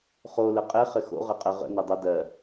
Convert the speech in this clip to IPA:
χ o l ə qʼ ɘ χ ɘ x o̰ ʁ ə qʼ ə ʁ ə̰ n e dˤ ə d ɜ

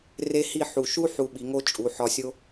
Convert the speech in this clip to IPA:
r e˥ h i˥˧ ħ u˧˩ ʃ u˥ ħ u˧ ɓ i˩˧ ŋ o˥ t͡ʃʼ u˩˧ ħ ɒ˧ sʲ o˥

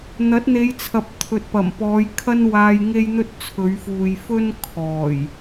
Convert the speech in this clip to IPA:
n̪ ɐ˨˥ t̚ n̪ e˨˧ j t͡sʰ ɐ˨ p̚ t̪ʰ ɵ˨ t̚ p ɐ˨˩ m p ɔː˨˧ j kʰ ɐ˥ n w aː˧ j ŋ e˥ j n̪ ɵ˥ t̚ t͡sʰ ɵ˨˧ ɥ f uː˨ j f ɵ˥ n kʰ ɔː˨˩ j

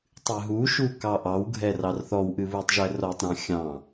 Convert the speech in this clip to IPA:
tˤ ɨ ɦ u ʃ u k ɑ ʔ ɑ w ɡʱ ɛ r ɑ r θ ɔ w ʔ ɨ β u tˤ ʒ ɛ r ɔ tˤ ɾ ɑ̃ xʲ ɑ̃

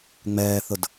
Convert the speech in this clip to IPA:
ŋ͡m ɛː θ ʊ d

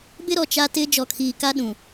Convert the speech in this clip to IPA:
b ɪ˦ ɾ ɔ˨ t͡ʃ a˦ t ɪ˦ d͡ʒ ɔ˨ kʰ iː˨ k a˦ ɗ ũ˨

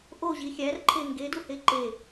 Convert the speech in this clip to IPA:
ʔ o ʑ i xʲ æ r ǃʰ e ŋ ɡ e d u h e ǃ e

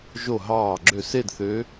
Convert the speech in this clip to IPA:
ʒ o˧˩ ɦ ɑː˧˩ ɡ͡ǁ ø˧˩ s e˥˧ d θ ø˧˥

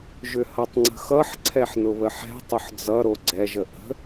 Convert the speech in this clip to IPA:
ʒ ʏ h ʌ tˤ ŋ͡ǀ ə̤ x ʌ ħ ǀʰ ɛ ħ n ʊ β ə ħ ɛ̤ tˤ ʊ ħ d͡z ʌ ɾ o ɡ͡ǀ ɛ ʒ ə ʔ ə̤

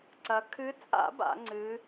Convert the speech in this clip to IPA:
ǀ ɐ˨˦ kʰ ɨ˨˦ t͡sʼ a̰˨˩˦ b a̰˨˩˦ ŋ͡ǀ ɨ˨˦

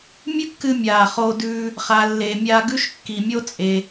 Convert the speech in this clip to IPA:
mʲ ʉ˥ kː ɨ˧ mʲ aː˩ χ oː˧ d ʉː˧ | χ a˩ lː e˩ mʲ a˧ ɡ ʉ˥ ʃ kː i˩ mʲ o˥ t͡sʼ e˩

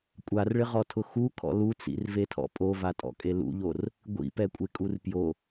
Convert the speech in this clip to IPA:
kʷʼ a r ɭ ɪ ʁ ɔ tʰ ʊ x u kʰ ɔ̰ l u t͡s ḭ r v e tʰ ɔ̰ pʼ o v a tʼ ɔ̰ kʼ e l ṵ ʎ o r | ɡʷ ḭ p ɛ kʷʼ e kʼ u r p j o

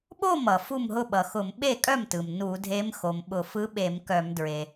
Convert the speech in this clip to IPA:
ɓ o˥˩ m ʌ˩ f u˥˩ m ɦ ʊ˥˩ ɓ ʌ˩ x ʊ˧˩˧ m ɓ e˥˩ kʼ œ˥˩ m t ɯ˩ m n u˧˩˧ dʱ e˧˥ m x o˩ m ɓ ʊ˧˩˧ f ɯ˧˥ ɓ e˧˩˧ m k œ˧˩˧ m d ɹ e˩

